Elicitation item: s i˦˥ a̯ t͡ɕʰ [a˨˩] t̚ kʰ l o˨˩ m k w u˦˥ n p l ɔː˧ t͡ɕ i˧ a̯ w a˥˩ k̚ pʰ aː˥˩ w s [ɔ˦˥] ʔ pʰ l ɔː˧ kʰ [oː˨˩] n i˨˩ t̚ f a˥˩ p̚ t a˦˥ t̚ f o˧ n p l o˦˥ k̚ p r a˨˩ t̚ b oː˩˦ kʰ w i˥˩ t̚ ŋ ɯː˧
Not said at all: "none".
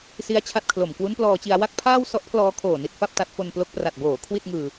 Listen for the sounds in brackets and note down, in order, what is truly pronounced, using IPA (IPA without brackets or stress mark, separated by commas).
a˥˩, ɔ˦˥, oː˨˩